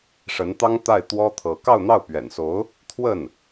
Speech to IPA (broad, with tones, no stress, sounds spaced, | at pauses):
ʂ ə˧˥ n t̪ ɑ˥ ŋ t̪ a˥˩ ɪ̯ t̪ w ɔ˥ t̪ʰ ɤ˧˥ k ɑ˥˧ ʊ̯ n̪ ɑ˥˩ ʊ̯ p ɥ ɛ̰˨˩ n s o˧˥ ʊ̯ | t̪ʰ w ə˥˩ n